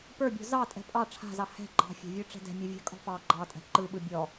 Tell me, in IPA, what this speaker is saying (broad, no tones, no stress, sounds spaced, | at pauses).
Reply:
p ə˞ bʲ ɔ̤ z ɑ tʼ ɛ̤ pʼ ɑ ʈ͡ʂʰ a̤ z ɑ h ɛ̤ ɡ͡ǃ ɑ̤ fʲ a̤ vʲ ə˞ ʈ͡ʂ ɛ̤ d ɛ̤ mʲ ɯ vʲ a̤ kʼ ɔ̤ p ɑ ɡ͡ǃ ɑ tʼ ɛ̤ ǃ ɯ ɓ ɯ bʲ ɔ